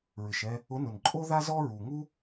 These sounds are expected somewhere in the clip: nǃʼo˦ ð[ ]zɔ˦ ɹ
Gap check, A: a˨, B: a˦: B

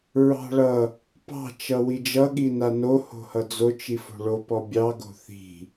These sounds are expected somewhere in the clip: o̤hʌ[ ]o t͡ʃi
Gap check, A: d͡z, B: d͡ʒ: A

